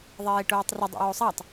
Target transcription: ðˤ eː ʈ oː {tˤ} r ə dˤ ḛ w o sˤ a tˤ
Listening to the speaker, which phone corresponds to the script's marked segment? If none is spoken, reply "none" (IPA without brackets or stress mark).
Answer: tˤ